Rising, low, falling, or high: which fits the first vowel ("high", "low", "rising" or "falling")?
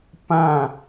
falling